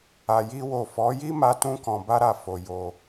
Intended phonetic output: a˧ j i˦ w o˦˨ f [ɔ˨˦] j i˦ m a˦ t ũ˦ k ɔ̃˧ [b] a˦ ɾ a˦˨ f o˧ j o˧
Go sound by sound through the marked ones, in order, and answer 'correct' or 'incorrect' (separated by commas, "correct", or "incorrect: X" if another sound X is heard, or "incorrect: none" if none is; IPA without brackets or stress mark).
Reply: correct, correct